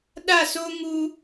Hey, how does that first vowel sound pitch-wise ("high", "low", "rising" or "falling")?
falling